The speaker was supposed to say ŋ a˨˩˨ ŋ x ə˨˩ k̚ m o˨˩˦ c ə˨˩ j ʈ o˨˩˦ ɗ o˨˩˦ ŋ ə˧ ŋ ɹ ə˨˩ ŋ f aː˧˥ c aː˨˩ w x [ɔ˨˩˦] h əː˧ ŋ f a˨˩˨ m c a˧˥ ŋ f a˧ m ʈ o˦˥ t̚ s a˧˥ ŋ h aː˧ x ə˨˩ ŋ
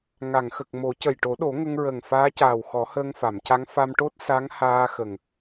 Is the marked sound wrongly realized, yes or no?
no